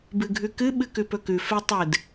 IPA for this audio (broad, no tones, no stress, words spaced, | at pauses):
bɨɡʱʉkɨ ɓɨkʉpɵkʉ fetˤɨd